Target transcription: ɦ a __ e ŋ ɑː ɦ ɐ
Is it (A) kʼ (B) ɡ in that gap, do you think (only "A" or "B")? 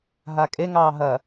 A